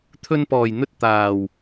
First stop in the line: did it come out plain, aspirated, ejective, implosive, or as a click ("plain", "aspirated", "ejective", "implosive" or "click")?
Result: aspirated